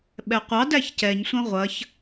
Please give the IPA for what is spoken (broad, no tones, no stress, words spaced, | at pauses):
ɓɛqʷɑdæç cɛɲsʷɐ̃ ʁʷɐç